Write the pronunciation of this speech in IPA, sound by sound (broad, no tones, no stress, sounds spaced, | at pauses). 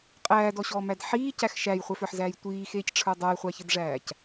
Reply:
qʼ æː d ɔ ɕ ɔː m æ d ħ iː c æ x ʃ æ j χʷ æ f ə˞ ħ z æː j tʷ iː x eː c ʈ͡ʂʰ ə˞ dˤ ə˞ j χʷ a ç ɘ d ʐ æː c